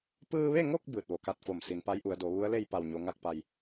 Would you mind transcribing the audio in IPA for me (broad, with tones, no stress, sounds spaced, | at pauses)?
p ɯː˧ ʋ e˥˨ ŋ o˥˨ k̚ b ɯː˧˩ t̚ ʋ o˩˧ k a˧˥ t̚ f o˧˩ m s i˩˧ n p a˧˥ j ʔ u˩˧ ə̯ d o˩˧ ʋ u˧˥ ə̯ l e˥˨ j p a˧˩ w ɲ o˩˧ ŋ a˧ k̚ p a˩ j